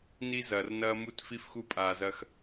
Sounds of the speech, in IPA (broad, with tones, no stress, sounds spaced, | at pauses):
n i˦ z ɐː˨ r n ɐː˦ m u˦ t f i˦ f x u˦ pʼ aː˨ z ɐ˦ x